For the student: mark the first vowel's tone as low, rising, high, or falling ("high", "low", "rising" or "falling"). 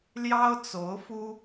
high